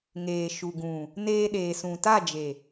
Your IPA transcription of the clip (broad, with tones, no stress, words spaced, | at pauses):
ŋeː˨ʃu˨ɡũ˨ | neː˧ɗeː˨sũ˨ ta˦˨d͡ʒe˨